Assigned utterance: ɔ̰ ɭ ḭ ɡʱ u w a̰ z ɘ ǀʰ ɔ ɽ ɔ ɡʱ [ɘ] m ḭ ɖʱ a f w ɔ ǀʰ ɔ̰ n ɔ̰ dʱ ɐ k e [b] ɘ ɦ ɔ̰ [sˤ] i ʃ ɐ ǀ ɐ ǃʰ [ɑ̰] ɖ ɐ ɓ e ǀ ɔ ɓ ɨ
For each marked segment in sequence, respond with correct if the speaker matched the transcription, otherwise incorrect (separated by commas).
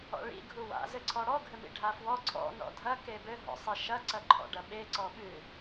correct, correct, correct, incorrect